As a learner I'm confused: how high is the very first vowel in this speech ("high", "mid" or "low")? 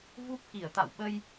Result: high